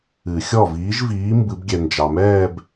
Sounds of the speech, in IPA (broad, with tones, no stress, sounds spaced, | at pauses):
ɨ˨˩˦ xʲ ɔ˥˩ v iː˨˥ ʒ v iː˨˥ m b ɨ˨˩˦ b ɡʲ ɛ˨ n d͡ʒ ɑ˨ m ɛː˥˧ b